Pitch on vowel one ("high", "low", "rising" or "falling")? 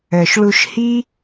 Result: low